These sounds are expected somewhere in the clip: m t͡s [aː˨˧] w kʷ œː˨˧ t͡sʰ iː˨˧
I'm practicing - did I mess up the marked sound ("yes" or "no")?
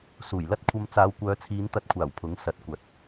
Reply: no